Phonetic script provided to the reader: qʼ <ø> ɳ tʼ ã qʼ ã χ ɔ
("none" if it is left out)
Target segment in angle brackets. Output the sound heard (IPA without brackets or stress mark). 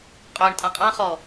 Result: ø